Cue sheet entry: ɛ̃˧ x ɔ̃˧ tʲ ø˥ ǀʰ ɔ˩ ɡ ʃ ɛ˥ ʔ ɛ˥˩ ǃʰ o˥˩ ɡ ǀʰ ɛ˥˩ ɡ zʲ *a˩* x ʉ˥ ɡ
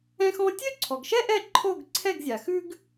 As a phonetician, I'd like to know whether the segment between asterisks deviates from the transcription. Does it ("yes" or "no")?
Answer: no